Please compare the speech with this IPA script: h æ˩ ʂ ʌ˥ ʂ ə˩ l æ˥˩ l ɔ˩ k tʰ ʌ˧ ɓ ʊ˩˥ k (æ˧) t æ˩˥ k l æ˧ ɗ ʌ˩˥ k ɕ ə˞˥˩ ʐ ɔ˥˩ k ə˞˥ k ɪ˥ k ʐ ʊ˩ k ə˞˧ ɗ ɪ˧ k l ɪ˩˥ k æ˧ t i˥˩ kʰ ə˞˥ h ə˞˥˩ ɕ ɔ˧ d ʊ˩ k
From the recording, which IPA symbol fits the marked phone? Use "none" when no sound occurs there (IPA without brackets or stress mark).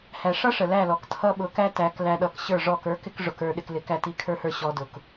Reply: æ˥